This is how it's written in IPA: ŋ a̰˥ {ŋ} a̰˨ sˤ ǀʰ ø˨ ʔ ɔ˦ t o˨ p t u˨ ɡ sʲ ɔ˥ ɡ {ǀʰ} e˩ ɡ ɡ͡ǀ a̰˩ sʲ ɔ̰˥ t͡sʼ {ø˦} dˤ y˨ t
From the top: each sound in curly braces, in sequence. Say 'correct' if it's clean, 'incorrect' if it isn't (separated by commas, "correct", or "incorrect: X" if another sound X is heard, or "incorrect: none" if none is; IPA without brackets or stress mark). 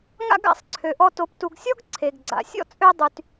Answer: incorrect: ɡ, correct, correct